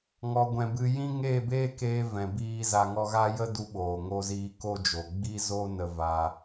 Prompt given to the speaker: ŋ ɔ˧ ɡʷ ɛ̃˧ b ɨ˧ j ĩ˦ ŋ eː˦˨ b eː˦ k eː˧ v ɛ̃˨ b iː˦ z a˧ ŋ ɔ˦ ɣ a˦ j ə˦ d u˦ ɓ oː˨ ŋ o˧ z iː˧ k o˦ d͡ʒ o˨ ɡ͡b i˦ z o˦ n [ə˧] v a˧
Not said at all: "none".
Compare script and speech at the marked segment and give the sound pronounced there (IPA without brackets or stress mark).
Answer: ə˧